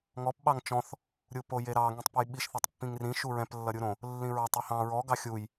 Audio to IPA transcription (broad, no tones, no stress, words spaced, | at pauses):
ŋɔp ɓɑŋt͡ʃɔ̃θ | ɾʲupojeɾɑ ŋĩtˤpejɓiʃ θʌtˤpːĩŋrĩ ʃuɹɛ̃p lːʌɾʲuɾõ | lːĩɹɑtˤ uhɑ̃ ɹɔ ɡɑxʲuj